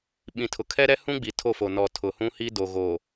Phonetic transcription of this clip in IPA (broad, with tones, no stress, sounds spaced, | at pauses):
ɓ ĩ˨ tʰ ʊ˨ kʰ ɛ˦ ɾ ɛ˦ h ũ˦ ɡ͡b i˨ tʰ o˦˨ f o˨ n ɔ˨ tʰ ʊ˨ h ũ˦ h i˦ d o˨ ɣ o˨